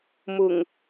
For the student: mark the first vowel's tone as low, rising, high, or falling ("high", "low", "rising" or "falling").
low